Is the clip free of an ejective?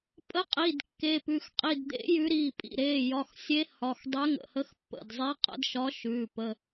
no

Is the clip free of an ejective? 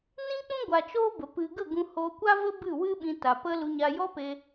yes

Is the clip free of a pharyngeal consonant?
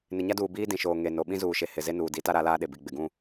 yes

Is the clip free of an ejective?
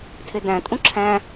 no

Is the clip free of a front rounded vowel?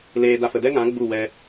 yes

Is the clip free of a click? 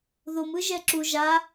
no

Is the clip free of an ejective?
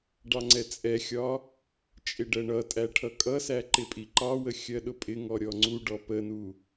no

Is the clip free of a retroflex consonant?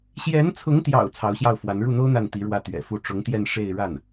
no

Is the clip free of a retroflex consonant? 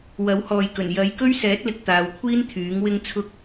yes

